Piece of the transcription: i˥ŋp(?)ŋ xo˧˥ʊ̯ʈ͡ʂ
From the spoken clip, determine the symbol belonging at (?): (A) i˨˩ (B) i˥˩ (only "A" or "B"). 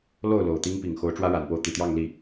A